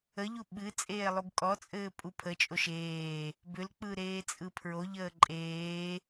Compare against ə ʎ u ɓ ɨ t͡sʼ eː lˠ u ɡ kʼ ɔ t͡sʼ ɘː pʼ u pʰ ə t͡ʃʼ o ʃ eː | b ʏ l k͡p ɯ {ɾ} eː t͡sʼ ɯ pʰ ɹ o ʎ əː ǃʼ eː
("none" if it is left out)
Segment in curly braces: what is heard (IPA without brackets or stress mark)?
ɾ